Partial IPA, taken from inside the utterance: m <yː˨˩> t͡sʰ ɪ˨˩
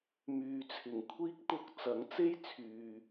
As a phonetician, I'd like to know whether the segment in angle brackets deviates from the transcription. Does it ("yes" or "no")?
yes